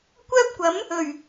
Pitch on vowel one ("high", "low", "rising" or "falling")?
high